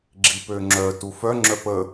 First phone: ɡ͡ǁ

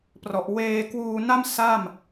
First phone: p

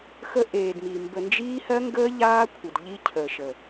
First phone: x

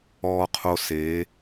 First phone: ɔː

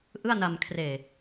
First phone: ʔ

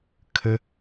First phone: kʰ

